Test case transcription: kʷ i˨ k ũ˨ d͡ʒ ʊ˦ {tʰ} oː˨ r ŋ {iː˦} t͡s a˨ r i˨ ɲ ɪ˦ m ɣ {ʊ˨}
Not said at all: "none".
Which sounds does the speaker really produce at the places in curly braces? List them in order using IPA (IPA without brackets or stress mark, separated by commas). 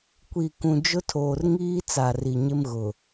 tʰ, iː˦, ʊ˨